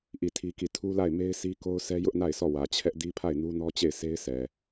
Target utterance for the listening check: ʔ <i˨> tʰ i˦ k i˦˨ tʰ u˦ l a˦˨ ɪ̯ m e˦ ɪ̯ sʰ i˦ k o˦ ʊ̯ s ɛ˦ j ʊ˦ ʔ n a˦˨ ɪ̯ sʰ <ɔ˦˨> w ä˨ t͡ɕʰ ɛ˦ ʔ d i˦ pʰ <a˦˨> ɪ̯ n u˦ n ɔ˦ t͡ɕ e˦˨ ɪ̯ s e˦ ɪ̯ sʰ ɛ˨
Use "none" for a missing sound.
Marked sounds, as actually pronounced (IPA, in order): i˦˨, ɔ˦˨, a˦˨

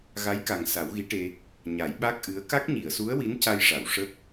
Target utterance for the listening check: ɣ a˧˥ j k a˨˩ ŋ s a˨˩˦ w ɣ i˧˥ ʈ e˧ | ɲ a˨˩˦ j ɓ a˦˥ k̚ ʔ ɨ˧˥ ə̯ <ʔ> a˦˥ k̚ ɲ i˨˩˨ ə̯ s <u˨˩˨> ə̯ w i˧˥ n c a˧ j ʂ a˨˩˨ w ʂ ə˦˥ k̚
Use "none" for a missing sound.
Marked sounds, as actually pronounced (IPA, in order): k, u˧˥

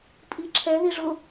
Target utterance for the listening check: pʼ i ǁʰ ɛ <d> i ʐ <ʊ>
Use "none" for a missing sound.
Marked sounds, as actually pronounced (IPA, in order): ð, ʊ

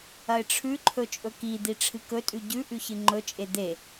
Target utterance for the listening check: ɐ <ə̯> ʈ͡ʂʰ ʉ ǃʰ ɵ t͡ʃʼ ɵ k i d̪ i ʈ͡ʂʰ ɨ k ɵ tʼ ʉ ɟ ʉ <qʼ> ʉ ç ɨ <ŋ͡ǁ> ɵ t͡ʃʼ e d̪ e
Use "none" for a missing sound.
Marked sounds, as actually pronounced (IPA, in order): ɪ̯, ʔ, ŋ͡ǃ

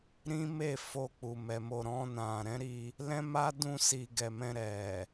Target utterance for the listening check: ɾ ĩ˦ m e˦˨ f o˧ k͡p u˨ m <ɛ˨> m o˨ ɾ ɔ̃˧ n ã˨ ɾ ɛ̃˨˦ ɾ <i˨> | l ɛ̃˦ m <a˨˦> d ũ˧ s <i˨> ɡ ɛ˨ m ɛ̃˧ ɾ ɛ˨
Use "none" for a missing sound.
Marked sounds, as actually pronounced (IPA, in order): ɛ˨, i˧, a˦, i˨

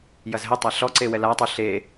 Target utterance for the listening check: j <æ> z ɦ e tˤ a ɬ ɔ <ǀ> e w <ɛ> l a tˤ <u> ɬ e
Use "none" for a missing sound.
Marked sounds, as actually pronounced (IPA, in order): ɐ, ǀ, ɛ, u

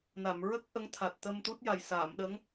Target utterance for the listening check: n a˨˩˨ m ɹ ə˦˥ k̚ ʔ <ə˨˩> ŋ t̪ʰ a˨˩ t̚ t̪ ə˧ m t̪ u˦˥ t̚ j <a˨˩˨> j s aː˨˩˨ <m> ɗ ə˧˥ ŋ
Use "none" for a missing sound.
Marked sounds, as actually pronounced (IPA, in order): ə˧˥, a˨˩, m

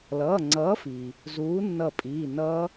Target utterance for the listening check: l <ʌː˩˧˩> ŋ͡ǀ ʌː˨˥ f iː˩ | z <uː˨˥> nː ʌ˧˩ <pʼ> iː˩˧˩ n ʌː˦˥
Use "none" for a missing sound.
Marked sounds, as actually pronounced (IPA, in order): ʌː˩˧˩, uː˨˥, pʼ

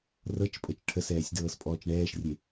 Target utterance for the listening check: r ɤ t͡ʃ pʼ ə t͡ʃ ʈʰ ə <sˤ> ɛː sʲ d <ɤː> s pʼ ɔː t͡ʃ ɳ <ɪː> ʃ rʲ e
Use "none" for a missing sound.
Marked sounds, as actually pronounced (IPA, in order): s, ɤː, ɛː

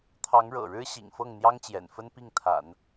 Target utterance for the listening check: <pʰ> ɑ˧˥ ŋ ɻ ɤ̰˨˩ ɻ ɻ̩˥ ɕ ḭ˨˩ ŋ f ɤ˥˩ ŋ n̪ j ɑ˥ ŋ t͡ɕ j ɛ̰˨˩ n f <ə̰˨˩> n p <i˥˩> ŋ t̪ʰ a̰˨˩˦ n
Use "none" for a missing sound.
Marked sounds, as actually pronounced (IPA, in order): t̪ʰ, ə˥, i˥˩

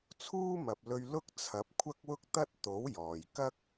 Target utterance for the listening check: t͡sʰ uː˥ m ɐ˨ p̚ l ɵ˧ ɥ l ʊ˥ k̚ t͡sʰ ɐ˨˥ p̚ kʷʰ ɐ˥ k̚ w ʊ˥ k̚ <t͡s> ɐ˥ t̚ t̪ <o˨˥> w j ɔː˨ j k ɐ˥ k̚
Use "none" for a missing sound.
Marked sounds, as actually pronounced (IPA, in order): t̪, o˨˥

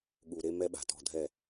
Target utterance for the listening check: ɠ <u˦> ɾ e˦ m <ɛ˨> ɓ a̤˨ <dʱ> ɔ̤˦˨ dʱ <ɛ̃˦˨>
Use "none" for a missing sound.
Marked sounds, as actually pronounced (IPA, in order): u˨, ɛ˦, t, ɛ˦˨

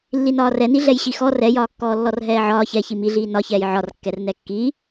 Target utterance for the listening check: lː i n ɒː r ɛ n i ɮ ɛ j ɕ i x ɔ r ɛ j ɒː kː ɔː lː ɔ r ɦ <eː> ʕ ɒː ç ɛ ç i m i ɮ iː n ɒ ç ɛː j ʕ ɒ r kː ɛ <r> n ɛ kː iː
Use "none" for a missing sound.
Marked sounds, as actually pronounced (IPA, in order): ɛː, r

